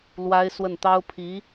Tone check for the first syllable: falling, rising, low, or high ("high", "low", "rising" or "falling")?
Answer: high